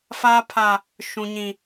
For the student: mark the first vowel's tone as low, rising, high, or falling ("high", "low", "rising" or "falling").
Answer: high